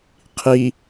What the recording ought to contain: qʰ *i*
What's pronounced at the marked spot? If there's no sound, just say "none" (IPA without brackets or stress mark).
i